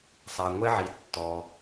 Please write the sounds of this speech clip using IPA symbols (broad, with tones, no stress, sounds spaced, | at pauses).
sˤ a˩ ŋʷ ɛ˦ ʕ i˩ tː ɔ˩